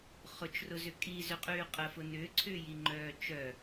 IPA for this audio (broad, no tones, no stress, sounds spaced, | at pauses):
χ ʊ t͡ʃ r ʊ z ʏ kʼ i z ʏ qʼ yː qʼ ə f ʊ n ʏː ǀʰ ʏː j i ŋ͡ǃ œː t͡ʃ œ